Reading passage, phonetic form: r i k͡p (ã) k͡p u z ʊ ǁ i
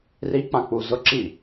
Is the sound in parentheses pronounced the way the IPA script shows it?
yes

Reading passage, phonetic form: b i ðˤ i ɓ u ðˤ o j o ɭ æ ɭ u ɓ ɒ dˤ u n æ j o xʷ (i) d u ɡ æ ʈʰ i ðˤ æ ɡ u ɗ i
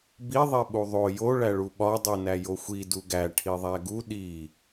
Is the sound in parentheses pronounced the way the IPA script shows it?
yes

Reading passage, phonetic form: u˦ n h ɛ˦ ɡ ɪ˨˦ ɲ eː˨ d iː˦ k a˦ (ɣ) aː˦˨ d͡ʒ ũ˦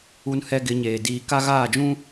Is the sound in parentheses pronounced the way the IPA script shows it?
yes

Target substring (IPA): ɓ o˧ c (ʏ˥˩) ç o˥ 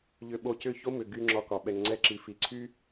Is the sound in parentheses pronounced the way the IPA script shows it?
yes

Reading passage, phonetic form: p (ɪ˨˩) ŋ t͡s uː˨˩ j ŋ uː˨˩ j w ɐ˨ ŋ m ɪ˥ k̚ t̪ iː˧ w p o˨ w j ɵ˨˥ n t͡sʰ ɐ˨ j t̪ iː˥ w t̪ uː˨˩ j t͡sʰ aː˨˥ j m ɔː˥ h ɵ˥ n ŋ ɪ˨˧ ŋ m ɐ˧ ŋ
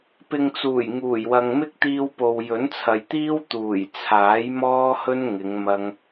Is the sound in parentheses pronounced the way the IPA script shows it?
no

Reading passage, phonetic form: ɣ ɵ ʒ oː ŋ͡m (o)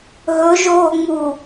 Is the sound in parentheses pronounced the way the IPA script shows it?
no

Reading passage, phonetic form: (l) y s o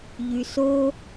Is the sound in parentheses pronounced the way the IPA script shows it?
no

